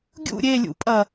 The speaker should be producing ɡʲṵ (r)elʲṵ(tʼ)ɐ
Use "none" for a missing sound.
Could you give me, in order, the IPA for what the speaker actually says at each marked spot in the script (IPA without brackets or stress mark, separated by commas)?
ɾʲ, pʼ